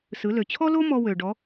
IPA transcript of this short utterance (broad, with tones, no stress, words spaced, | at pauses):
sɯ˩˧lø˩t͡ɕʰɔ˥lo˥ mɔ˧wø˩ ɖɔ˩˧